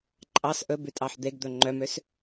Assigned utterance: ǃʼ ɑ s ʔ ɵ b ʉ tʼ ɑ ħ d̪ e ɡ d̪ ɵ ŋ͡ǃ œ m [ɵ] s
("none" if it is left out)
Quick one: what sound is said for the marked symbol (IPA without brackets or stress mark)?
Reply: ø